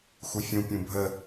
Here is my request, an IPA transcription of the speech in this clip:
xufʲũ pʲũbʱə

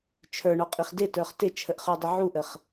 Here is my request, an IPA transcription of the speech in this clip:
t͡ʃʰə˞ɳɔqʼiχ dɪtə˞χ tɪt͡ʃʰəʔχə˞dˤə ʕuʔəχ

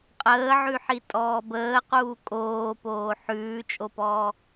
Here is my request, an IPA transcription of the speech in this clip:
qʼəːʕʉħi tʼɔːbəːquː kʼoːpoː ħʉːt͡ʃʼopɔː

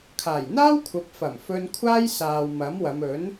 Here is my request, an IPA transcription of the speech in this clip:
kʰaː˨˩jn̪aː˥wkʷʰɐ˨˥p̚fɐ˨˩m fɵ˧nkʷʰaː˥jsaː˨w mɐ˨˥mwɐ˨˧m ɵ˨˥n

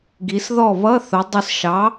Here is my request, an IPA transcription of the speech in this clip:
ɡi˩˧sðɔ˥˩ βʌ˧˥˧θʊ˩˧dˤʊ˧˩sʃɑ˩˥

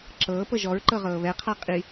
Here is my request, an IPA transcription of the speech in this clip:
ǁɤːpɤ ʒɔɹǃɤʁɤː βɛqʰa qʼi

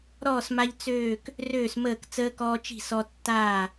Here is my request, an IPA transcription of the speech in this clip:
ɾɔː˥˨sma˦ʎ t͡søː˥˨k | røː˥˨sməː˥˨k t͡səː˦kɔː˦t͡ʃi̤˥˨sɔ˦ tːaː˥˨

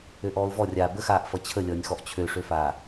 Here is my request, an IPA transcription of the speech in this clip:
øʔɔːʊ̯vɔrʲaː bəxaːʔ fʌt͡ɕʰəlʲʌːnʲ xɔʔt͡ɕʰøʂøfaː

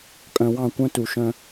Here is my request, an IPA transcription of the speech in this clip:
kʼœ̃˨wɑ̃˦˨kʷœ̃˦ tu˨ʃœ̃˦

